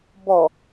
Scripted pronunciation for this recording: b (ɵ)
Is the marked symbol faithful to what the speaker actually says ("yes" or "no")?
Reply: no